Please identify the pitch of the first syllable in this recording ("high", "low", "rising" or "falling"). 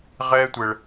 high